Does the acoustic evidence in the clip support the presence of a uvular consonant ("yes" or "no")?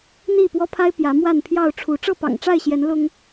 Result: no